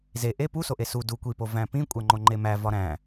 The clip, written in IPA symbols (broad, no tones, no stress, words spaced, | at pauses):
ze ʔe pusoʔe su du kʷipo væ̃pĩ kʷʼæŋ͡ǃoŋ͡ǃemæ vɒɾæ̃